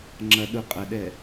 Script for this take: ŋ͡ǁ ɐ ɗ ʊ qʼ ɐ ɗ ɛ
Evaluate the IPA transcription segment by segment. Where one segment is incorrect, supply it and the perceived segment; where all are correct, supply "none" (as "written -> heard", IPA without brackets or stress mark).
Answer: none